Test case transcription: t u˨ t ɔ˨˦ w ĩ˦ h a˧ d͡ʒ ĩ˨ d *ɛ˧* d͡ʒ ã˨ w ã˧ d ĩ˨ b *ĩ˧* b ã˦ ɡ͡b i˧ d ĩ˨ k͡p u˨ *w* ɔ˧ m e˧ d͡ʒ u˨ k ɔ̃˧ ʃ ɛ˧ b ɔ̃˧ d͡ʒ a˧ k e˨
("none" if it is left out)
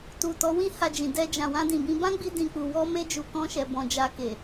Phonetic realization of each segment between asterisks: ɛ˧, ĩ˧, w

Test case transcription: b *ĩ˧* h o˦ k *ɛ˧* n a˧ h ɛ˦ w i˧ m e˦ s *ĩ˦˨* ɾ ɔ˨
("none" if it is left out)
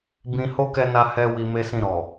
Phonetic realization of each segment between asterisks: ĩ˧, ɛ˧, ĩ˦˨

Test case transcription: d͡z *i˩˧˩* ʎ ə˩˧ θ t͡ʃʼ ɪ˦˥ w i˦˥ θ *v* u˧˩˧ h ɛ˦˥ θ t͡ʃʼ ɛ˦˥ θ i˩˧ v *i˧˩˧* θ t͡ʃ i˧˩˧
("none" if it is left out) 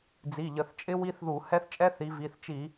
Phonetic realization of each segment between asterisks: i˩˧˩, ð, i˩˧˩

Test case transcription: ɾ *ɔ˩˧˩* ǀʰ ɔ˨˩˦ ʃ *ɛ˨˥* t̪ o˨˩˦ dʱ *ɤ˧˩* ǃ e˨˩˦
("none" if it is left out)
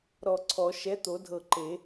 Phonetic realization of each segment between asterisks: ɔ˧˩, ɛ˨˥, ɤ˧˩

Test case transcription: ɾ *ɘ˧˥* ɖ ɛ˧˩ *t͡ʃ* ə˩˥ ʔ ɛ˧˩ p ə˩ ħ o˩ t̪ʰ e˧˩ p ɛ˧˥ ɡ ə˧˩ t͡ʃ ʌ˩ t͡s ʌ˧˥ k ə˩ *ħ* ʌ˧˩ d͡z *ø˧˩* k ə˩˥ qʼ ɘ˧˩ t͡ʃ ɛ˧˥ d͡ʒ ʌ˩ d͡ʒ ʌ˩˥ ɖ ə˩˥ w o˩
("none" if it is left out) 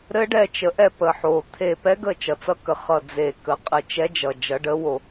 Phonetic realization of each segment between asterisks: ɘ˧˥, t͡ʃ, χ, e˧˩

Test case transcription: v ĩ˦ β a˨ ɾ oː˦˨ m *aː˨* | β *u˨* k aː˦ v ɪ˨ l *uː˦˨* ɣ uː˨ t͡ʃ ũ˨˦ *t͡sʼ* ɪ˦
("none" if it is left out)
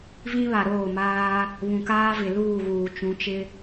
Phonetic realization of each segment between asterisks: aː˦, ũ˨, uː˦˨, t͡ʃ

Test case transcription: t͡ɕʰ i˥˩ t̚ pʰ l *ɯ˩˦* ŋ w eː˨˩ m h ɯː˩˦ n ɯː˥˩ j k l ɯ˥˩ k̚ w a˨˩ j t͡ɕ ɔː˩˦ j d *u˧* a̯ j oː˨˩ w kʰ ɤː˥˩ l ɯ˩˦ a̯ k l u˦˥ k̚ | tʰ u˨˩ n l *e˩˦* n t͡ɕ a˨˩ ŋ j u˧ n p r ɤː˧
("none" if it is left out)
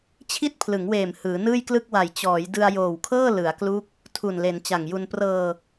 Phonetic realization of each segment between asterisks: ɯ˩˦, ɯ˧, e˩˦

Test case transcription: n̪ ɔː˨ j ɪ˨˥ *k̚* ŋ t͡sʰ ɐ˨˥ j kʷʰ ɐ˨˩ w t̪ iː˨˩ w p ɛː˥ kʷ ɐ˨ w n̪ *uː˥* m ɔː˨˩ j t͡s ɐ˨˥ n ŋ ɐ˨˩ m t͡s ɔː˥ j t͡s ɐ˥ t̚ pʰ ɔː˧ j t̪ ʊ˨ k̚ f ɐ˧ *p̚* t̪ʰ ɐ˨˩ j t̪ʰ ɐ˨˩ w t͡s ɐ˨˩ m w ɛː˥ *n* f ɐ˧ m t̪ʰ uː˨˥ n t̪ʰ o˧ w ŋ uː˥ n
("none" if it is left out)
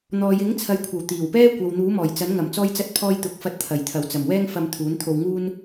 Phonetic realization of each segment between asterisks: none, uː˨˥, t̚, ŋ

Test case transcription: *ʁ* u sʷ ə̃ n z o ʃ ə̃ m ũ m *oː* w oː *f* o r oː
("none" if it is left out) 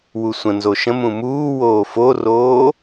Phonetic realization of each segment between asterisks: w, uː, f

